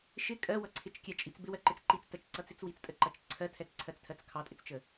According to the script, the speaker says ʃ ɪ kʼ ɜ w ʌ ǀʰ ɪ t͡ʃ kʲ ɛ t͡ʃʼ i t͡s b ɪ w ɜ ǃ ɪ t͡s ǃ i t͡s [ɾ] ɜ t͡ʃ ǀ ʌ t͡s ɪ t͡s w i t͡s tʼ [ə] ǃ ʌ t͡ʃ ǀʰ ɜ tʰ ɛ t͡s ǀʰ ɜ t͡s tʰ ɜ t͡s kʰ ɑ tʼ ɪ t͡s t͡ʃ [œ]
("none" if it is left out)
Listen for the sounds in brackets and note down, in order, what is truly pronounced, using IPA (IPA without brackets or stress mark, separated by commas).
t, ə, ə